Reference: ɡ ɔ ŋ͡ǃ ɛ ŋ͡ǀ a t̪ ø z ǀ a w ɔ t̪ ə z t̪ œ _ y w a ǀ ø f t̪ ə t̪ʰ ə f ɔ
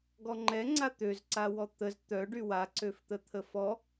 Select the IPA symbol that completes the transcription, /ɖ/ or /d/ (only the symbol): ɖ